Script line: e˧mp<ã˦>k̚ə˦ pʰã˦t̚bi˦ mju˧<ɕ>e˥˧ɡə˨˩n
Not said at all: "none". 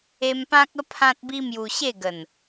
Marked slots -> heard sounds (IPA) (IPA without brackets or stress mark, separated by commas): ã˦, ɕ